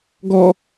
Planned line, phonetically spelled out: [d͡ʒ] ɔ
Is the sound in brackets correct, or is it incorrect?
incorrect